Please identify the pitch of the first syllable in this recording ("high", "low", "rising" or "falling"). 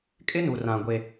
high